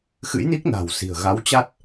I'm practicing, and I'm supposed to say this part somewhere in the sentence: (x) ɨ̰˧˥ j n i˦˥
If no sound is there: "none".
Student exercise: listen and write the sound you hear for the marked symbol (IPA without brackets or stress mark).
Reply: x